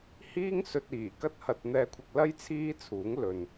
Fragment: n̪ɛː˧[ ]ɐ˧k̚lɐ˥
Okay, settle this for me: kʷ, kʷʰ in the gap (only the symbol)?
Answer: kʷʰ